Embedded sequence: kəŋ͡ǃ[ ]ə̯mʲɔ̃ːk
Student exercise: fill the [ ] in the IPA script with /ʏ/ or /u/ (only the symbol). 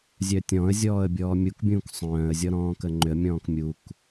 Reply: ʏ